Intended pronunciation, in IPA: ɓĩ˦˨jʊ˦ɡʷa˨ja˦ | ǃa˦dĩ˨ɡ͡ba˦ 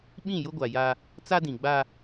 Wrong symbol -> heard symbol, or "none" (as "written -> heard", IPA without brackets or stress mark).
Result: ǃ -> t͡s